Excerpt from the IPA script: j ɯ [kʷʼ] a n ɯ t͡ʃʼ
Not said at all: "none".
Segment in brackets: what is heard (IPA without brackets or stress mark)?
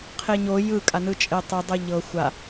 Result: kʼ